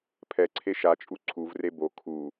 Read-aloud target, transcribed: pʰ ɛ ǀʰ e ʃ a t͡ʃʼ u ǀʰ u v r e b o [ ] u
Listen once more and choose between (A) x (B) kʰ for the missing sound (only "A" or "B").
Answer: B